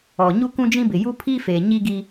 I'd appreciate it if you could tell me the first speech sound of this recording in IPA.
ɔ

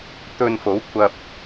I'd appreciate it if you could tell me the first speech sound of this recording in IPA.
t̪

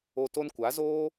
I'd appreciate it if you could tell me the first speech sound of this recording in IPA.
o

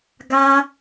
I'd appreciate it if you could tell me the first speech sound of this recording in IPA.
ɡ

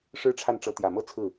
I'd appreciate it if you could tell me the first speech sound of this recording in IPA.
ʂ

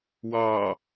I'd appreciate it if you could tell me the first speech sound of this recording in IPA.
w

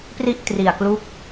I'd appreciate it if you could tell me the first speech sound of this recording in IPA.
p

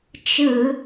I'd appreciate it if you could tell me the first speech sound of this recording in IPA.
t͡ʃ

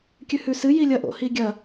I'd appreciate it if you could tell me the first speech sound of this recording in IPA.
kʲ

